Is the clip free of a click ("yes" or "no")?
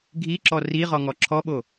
no